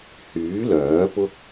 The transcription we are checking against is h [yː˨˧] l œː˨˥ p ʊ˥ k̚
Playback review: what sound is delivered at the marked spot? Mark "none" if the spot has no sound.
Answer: yː˨˥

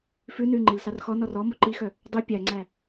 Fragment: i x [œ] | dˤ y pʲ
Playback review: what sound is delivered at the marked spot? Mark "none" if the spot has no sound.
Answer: œ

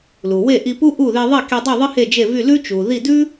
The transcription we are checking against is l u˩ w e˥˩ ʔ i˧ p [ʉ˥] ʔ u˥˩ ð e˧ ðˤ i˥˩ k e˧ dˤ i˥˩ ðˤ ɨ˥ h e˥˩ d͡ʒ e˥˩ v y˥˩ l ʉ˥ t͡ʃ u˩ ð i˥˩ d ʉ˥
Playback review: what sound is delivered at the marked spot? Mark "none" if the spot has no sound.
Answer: u˥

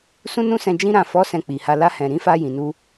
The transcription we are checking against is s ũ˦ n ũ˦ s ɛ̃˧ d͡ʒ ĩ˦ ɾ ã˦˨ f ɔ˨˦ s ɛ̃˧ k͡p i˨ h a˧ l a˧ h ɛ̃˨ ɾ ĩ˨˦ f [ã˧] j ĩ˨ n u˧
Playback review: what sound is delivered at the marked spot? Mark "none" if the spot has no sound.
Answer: a˧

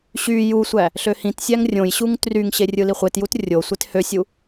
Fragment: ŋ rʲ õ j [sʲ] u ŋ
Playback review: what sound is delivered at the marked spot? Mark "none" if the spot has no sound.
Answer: ɕ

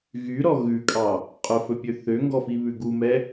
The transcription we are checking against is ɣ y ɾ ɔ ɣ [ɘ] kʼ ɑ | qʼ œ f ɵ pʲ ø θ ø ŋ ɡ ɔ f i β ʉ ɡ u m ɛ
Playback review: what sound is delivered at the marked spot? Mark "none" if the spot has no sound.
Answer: ʉ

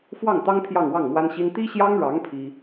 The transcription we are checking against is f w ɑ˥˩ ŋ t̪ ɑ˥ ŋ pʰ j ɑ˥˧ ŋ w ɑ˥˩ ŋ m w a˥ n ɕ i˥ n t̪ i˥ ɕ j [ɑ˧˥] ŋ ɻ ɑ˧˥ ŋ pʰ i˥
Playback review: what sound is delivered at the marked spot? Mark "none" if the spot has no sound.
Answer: ɑ˥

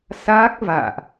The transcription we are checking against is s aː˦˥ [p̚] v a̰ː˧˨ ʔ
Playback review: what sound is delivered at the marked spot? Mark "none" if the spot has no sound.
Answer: k̚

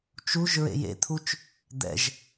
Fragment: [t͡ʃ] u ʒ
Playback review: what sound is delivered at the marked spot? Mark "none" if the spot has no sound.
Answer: t͡ʃ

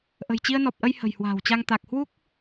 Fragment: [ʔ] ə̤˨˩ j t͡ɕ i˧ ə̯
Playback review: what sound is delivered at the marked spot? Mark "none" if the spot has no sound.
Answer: ʔ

